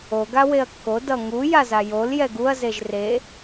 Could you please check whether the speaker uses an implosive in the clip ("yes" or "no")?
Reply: no